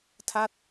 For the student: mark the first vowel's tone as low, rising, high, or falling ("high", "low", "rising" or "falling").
falling